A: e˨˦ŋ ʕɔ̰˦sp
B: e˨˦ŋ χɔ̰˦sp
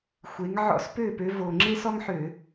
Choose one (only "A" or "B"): A